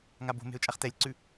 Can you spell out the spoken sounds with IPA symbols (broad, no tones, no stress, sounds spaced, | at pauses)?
ŋ a b o̤ m e̤ ʊ̯ t͡ʃʼ a χ t ɛ lʲ ǀ ʉ